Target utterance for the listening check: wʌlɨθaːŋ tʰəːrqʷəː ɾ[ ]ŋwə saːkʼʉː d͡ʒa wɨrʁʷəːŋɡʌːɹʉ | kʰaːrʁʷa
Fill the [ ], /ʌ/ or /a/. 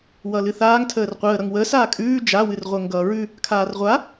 ʌ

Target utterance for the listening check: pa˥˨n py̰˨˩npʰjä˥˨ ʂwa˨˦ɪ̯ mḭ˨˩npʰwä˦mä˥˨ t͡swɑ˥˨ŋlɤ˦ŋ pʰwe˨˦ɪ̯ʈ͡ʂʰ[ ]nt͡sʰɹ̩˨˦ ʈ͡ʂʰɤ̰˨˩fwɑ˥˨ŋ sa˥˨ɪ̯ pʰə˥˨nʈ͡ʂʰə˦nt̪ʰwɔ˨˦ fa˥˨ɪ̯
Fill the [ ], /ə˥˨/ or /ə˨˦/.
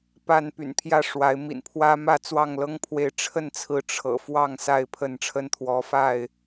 ə˥˨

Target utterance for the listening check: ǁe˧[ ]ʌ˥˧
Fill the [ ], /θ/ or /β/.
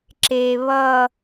β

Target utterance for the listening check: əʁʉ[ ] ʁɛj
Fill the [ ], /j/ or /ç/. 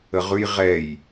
j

